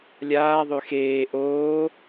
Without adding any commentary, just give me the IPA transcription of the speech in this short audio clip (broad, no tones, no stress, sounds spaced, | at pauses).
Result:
lʲ aː ðˤ ø x eː ʔ oː